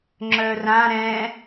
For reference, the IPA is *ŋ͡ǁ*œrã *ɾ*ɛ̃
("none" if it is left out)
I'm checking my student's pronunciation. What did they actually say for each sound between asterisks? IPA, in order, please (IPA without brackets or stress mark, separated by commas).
ŋ͡ǁ, ɾ